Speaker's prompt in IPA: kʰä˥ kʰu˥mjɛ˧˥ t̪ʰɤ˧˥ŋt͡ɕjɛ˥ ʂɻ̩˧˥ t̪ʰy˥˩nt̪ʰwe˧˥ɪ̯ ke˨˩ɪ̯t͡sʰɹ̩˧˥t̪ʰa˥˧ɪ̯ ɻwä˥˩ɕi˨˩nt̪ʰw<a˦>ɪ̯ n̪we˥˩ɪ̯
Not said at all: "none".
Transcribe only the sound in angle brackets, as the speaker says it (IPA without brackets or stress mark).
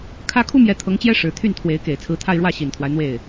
a˦